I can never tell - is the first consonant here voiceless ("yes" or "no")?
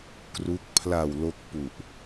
yes